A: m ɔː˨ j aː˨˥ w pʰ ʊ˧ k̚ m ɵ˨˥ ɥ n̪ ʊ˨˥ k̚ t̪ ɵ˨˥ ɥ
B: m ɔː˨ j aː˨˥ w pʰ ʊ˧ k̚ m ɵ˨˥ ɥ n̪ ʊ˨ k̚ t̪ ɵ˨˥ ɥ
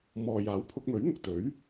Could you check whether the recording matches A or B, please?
B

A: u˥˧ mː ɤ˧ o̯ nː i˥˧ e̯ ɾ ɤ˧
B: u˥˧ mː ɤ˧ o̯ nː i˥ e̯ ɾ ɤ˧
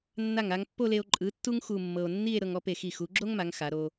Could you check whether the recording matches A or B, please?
A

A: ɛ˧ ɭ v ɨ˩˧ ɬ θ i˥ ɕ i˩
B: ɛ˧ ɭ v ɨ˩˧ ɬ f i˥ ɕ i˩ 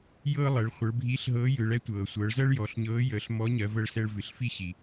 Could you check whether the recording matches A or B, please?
B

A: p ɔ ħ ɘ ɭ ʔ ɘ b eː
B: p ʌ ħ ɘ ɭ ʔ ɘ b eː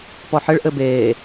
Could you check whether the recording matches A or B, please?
A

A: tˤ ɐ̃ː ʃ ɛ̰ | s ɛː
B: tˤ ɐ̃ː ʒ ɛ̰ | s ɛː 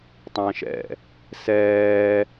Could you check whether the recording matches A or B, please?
A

